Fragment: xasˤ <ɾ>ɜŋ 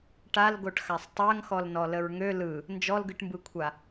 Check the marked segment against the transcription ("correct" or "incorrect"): incorrect